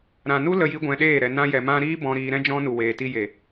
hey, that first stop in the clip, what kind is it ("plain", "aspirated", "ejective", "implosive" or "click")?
plain